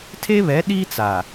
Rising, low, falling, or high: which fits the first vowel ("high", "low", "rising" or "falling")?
high